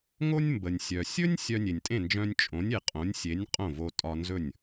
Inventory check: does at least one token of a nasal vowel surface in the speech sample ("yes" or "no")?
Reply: yes